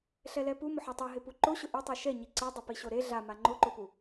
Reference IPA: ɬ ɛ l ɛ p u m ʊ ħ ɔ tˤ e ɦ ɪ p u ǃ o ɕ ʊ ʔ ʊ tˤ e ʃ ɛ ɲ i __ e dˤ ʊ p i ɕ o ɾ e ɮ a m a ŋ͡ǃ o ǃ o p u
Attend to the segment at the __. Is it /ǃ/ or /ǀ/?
ǀ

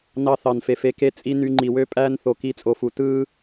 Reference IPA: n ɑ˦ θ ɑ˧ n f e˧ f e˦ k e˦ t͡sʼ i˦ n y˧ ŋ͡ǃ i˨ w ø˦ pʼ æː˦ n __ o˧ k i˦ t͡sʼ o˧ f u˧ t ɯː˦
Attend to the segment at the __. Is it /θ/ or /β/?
θ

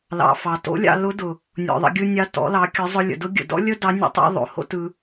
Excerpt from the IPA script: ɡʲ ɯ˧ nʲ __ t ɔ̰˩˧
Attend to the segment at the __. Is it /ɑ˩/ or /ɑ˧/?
ɑ˧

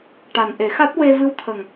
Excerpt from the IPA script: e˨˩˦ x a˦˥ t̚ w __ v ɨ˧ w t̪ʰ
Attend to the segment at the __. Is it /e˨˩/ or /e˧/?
e˧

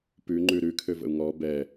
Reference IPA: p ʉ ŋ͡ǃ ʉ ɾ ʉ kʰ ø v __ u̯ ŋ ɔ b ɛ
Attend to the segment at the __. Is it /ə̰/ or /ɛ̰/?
ə̰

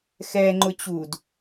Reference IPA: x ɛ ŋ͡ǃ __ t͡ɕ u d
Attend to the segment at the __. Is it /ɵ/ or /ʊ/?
ʊ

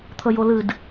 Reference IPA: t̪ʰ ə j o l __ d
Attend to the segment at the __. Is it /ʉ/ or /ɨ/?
ɨ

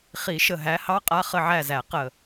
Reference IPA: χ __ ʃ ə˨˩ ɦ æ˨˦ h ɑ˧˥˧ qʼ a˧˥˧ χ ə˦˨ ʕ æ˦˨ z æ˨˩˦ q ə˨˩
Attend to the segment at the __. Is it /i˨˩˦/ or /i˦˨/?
i˨˩˦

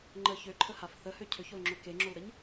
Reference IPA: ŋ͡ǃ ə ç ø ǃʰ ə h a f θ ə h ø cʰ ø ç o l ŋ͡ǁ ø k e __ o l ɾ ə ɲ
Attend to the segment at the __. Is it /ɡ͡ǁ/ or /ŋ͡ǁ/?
ŋ͡ǁ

